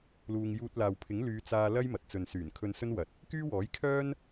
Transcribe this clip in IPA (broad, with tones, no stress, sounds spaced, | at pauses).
l uː˧ ŋ j uː˧ t̚ l aː˨ w pʰ ɪ˨˥ ŋ l yː˨˧ t͡s aː˧ l ɐ˥ j m ɐ˨ t̚ t͡s ɵ˨ n s yː˨˩ n kʰ ɵ˧ n s ɵ˥ n w ɐ˨˥ t̚ | k yː˥ w ɔː˨˥ j kʰ œː˥ n